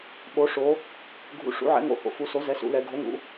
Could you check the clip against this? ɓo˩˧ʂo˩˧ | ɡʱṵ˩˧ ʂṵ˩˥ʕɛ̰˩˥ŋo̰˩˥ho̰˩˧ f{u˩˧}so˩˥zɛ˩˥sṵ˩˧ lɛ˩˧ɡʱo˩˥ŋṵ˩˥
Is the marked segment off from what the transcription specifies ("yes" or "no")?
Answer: no